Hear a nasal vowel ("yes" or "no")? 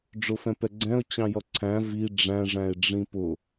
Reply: yes